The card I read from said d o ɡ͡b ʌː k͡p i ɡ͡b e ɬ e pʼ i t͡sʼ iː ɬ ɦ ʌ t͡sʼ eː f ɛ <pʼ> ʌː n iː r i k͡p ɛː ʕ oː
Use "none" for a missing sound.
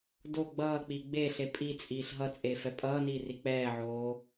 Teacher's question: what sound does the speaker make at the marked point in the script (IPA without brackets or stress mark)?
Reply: pʼ